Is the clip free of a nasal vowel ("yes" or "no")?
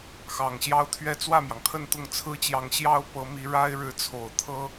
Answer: yes